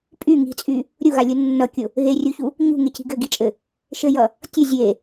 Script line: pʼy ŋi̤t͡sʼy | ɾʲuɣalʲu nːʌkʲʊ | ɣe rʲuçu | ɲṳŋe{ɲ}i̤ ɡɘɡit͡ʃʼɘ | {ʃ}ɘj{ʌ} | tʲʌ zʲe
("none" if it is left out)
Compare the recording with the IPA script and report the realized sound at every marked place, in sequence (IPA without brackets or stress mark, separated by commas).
c, ʃ, ʌ